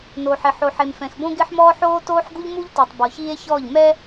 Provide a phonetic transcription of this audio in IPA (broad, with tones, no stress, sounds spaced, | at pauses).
n oː˨ ħ ɪ˨ ħ o˨ ħ e˨ m f ɛ̃˨ x b õ˦ ɡ ɪː˦ ħ m ɔː˦ ħ oː˦ t oː˦ ħ ɡ u˦ ʎ m u˦ ʎ t i˨ tˤ b ɔ˨ ç iː˦ e̯ ç ɔː˦˨ ʎ m ɛ˦